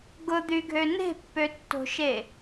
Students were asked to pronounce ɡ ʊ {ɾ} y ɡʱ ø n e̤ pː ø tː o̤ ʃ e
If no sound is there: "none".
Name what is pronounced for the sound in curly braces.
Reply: d̪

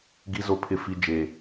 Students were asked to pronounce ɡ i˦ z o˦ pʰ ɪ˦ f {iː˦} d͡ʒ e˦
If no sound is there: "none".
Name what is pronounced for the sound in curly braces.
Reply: i˦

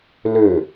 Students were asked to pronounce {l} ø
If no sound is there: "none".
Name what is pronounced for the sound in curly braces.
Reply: l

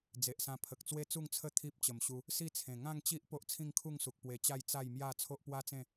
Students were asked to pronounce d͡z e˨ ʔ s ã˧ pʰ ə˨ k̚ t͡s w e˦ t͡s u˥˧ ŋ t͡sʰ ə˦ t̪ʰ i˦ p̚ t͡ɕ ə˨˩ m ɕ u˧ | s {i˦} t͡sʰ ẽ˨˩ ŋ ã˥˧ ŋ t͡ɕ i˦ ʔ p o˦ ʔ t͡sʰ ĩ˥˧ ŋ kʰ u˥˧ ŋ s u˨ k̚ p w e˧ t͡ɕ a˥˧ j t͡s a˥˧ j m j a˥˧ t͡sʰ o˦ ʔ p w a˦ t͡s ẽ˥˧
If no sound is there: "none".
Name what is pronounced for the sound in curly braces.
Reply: i˥˧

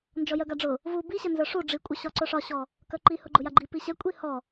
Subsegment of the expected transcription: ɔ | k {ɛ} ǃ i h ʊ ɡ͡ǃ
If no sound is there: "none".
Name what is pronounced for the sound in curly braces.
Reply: œ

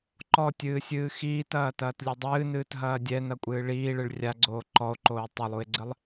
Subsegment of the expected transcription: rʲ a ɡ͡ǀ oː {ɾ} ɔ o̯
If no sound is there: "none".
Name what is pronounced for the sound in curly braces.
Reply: ǃ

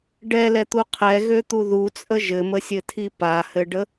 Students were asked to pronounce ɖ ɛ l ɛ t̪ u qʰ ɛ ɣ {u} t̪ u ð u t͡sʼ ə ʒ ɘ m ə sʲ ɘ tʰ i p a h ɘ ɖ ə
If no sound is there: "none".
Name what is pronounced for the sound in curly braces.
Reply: ø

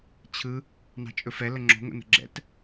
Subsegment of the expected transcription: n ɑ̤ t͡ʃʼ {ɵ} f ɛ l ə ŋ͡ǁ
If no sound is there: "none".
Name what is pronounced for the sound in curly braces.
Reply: ɵ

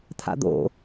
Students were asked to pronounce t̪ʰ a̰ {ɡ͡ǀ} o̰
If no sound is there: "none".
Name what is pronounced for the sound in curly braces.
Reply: d̪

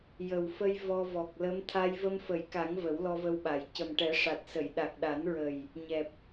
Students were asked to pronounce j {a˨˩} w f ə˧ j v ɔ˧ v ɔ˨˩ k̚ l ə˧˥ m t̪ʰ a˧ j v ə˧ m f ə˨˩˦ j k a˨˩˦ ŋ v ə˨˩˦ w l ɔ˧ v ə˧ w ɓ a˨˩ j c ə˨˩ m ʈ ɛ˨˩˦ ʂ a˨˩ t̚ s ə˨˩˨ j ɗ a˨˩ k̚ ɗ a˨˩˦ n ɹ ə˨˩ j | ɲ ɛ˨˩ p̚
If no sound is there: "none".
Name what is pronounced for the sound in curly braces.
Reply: ə˨˩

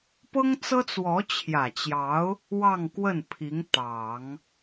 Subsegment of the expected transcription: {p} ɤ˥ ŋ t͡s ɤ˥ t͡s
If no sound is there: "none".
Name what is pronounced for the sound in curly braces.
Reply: p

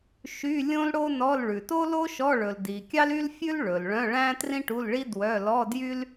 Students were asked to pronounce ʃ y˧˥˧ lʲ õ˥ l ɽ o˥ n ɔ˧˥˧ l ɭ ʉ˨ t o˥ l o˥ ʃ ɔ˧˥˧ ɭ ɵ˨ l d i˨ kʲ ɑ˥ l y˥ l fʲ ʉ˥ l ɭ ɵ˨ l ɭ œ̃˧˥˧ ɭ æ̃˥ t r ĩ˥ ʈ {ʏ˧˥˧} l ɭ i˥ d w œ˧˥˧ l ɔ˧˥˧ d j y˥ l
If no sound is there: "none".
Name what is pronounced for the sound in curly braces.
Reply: u˧˥˧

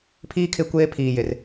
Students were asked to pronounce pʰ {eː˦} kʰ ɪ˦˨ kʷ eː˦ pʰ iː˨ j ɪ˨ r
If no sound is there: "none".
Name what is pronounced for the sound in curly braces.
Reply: iː˦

